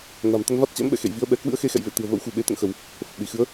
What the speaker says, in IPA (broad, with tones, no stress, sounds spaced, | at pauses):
n a̤˨˩ m t̪ ə˧ n v a˦˥ t̚ t͡ɕ ɛ̰˧˥ m ɓ ɛ̰˧˨ x ḛ˧˨ j v i˨˦ ə̯ ɓ ɛ˨˦ k w ɨ̰˧˥ ə̯ x e˧ x ɛ̰˧˨ j v ḛ˧˨ t̪ ɨ̤˨˩ ə̯ v ə̰˧˥ w x ṳ˨˩ ɓ e˨˦ t̪ ə̰˧˨ n x ə˧˩˨ w | f ə˨˩ p̚ ɗ i˧˩ x ɨ˨˦ ə̯